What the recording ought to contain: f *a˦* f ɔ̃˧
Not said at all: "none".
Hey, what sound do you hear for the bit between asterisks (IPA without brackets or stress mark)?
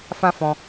ã˦